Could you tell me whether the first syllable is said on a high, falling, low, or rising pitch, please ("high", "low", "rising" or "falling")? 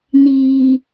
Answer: low